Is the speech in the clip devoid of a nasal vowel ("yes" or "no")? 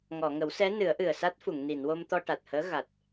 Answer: yes